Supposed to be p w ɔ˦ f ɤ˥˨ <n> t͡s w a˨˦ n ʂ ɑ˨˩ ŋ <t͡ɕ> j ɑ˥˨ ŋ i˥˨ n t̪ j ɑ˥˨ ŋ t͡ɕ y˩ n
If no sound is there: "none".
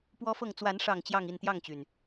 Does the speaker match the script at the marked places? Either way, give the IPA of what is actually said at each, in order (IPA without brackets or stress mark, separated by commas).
ŋ, t͡ɕ